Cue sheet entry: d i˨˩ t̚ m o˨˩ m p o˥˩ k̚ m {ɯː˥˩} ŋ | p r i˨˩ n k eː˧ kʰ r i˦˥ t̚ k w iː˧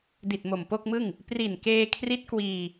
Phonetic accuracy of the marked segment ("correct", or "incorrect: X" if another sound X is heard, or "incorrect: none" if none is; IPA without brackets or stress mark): incorrect: ɯ˥˩